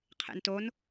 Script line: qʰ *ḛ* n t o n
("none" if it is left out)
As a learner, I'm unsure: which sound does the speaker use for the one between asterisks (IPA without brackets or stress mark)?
ḛ